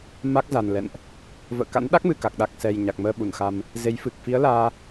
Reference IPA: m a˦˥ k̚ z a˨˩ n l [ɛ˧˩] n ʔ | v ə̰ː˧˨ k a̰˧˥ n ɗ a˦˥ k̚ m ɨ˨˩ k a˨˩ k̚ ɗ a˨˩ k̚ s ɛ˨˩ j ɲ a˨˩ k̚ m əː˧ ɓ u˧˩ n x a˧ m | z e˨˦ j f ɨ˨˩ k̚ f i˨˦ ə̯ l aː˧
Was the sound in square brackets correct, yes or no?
no